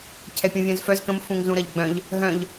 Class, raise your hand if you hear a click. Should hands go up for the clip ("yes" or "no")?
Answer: no